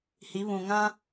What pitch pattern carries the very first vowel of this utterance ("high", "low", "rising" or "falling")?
rising